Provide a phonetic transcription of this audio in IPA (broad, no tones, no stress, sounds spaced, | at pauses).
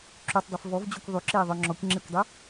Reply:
ǁ y tˤ dˤ e f v ɔ v d͡ʑ o kʷ ðˤ y ǁ eː ðˤ œ ŋ͡ǁ ɔ kʷ ŋ͡ǁ e kʷ dˤ y